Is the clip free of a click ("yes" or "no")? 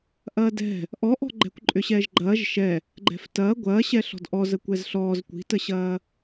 no